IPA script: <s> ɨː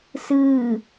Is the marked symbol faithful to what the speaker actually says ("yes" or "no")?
yes